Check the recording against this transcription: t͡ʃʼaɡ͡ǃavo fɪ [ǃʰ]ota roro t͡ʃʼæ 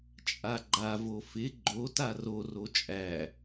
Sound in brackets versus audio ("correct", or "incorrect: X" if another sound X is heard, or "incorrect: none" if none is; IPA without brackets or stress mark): incorrect: ɡ͡ǃ